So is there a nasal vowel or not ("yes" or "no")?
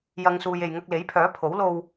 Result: no